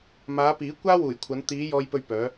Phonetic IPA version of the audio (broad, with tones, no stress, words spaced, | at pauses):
maː˨˧piː˨˥ kʷaː˥wuː˨˩jkʷʰɐ˨˧n t̪iː˨˧ jɔː˧jpɵ˧ɥpœː˨˧